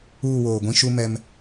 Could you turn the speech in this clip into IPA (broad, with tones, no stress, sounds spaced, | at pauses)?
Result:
uː˦˨ w oː˨ ɡʷ ĩ˦ ʃ u˦ m ɛ˦ m